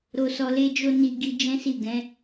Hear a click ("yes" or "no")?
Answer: no